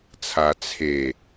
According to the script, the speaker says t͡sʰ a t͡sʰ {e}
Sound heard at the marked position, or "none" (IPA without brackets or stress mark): e